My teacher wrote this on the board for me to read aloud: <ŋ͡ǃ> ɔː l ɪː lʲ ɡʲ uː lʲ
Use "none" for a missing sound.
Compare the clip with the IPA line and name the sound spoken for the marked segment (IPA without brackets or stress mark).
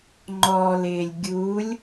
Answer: ŋ͡ǃ